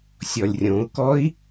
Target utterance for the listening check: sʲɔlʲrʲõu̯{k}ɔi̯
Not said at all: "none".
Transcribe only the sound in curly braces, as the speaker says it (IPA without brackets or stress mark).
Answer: k